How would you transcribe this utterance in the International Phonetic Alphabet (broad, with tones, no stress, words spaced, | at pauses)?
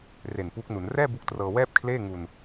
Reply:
re˨˩npuː˦˥k̚nu˩˦n rɛː˥˩ bu˥˩k̚ trɤː˧ wɛː˥˩p̚kʰleː˥˩ŋu˧n